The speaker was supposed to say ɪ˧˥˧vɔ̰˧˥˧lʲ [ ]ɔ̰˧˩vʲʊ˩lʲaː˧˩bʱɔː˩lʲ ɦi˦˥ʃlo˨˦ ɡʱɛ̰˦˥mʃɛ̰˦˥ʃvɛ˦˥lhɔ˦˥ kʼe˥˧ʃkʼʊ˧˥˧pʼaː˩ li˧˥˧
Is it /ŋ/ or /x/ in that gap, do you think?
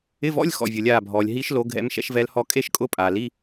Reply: x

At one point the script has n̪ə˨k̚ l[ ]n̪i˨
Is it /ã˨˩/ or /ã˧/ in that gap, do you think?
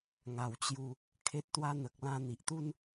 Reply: ã˧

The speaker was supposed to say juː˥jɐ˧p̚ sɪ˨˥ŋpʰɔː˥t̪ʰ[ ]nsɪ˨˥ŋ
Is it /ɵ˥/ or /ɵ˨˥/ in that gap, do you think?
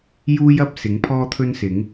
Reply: ɵ˥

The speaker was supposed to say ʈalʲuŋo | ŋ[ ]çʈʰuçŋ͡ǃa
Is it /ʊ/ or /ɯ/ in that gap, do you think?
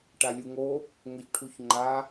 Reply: ʊ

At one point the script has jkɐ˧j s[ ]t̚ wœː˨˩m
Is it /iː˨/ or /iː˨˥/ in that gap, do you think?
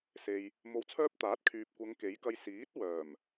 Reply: iː˨˥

